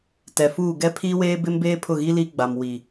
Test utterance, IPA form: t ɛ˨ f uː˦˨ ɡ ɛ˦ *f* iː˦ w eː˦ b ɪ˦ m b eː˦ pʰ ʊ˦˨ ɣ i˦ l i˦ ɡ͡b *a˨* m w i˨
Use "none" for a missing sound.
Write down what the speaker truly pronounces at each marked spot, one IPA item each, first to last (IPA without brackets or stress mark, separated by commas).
pʰ, a˨